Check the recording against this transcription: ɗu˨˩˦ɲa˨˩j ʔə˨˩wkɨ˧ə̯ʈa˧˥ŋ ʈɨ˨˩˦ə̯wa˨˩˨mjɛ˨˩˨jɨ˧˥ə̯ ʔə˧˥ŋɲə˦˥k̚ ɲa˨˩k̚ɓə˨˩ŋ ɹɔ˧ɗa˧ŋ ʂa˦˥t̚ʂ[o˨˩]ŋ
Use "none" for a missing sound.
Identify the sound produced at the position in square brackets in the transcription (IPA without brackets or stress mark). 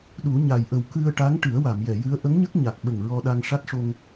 o˧